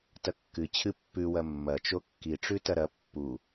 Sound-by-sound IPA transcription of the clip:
t ɐ kː ɨ t͡ɕʰ ɨ pː ʉ w ɐ mː ɐ t͡ʃ o kː i ʈ͡ʂ ʉ t ɐ ɾ ɐ pː u

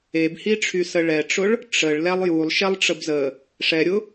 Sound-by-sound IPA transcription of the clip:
e b h i ʈ͡ʂʰ y s ə ɭ ɛ ʈ͡ʂ ʊ ɭ | ʈ͡ʂ ə ɭ l ɛ lˠ j u lˠ ʃ ɛ lˠ ʈ͡ʂ ə b z ə | ʂ ɛ ɾʲ ʊ

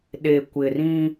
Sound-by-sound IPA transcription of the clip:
ɗ e˨ kʷ ɪ˨ r ĩ˦

